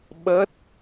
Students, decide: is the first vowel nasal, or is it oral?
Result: oral